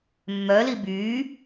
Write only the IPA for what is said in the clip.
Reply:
mː œ l i b y

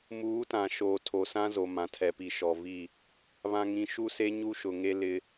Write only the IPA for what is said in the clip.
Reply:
m uː˨˦ t ã˨ ʃ oː˨ tʰ o˨ s ã˦ z o˨ m ã˨ tʰ ɛ˨ p i˨ ʃ ɔ˨ v i˦˨ | β ã˨ ŋ ĩ˨ ʃ u˦ s e˦ ɲ u˦ ʃ ʊ˨ ŋ e˦ l ɪ˦

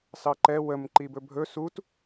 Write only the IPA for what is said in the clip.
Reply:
s ɑ ǃ ɛ w ə m ǃ i b ɵ bʱ ɵ s u t

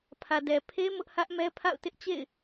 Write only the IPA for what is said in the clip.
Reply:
pʰ ä˨ d ɛ˨ pʰ e˦ m ʊ˦ ʔ h ä˦ ʔ m ɛ˦ pʰ a̰˦˨ ʊ̯ t ɪ˦ ʔ t͡ɕ ḛ˦˨ ɪ̯

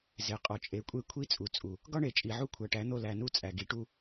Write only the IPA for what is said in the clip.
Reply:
z e˨ qʼ ɒ˨ t͡ʃʼ e˨˦ kʷʼ e˦ kʷʰ i˦ t͡sʼ u˨ t͡sʼ u˨ | ɡ ɒ˦ ɳ e˨ t͡ʃʼ i˨ ʕ u˦ kʷʰ æ˨ ʈ æ˨˦ n̪ o˦˨ l æ˨ n u˦ t͡sʼ æ˨ ɡ i˨˦ ʈ u˦

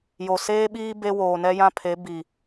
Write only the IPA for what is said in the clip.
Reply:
j o˨ s eː˦ ɓ iː˦ b e˦ w oː˨ n ɛ˦ j ã˦ pʰ e˨˦ b i˨

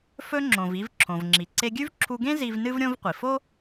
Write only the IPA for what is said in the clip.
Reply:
f ɵ˧ ŋ͡ǁ õ˩ v i˧ v ǁʰ õ˩ v ŋ͡ǁ i˩ ǀ e˧ ɡʲ ʉ˥ v ǁʰ u˧ ɡ ẽ˥ z i˧ v n ɨ˥ v ɾʲ õ˥ v qʷ i˩ f o˥

